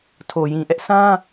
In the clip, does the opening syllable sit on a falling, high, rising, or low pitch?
low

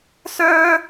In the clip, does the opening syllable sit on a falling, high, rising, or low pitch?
high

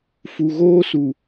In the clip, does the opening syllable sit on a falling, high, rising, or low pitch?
low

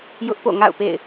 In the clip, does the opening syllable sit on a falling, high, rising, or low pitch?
high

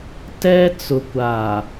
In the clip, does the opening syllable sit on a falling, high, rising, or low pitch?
high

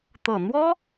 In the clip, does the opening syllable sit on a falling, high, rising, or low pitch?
low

